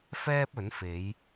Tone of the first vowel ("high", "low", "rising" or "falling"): high